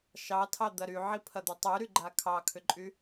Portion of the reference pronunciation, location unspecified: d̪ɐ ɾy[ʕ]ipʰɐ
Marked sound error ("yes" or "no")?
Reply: no